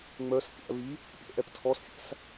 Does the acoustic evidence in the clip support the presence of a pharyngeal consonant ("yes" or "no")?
no